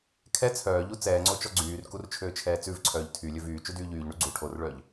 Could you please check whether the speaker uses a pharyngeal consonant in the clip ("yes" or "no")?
no